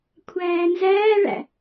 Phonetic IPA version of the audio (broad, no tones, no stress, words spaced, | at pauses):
kʷʰæːnzæːɭæ̰